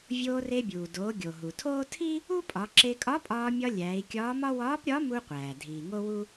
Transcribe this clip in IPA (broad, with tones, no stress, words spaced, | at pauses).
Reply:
vʲoː˧re˧bʲuː˩doː˩˧ ɡʲo˩ ɦu˩tʰoː˥ tʰi˥ | u˥pʼɒ˩˧ǁe˧ kʼɒ˧˥pʼɒː˧mʲɒ˧ lʲæː˩˧i̯kʲɒː˧˥mɒ˥ wɒː˧˥pɾʲɒ˧˥mu˧qʷæː˩ dʱiː˩ŋo˥wu˥